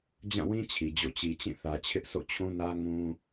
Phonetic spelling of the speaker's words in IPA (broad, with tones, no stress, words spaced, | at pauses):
d͡ʑã˦˨wĩ˦ t͡ɕʰi˨d͡ʑo̰˦˨ t͡ɕi˨t͡ɕĩ˦˨θä˨ t͡ɕʰɪ˦ʔso̰˦˨t͡ɕʰũ˦nä˦ ŋũ˦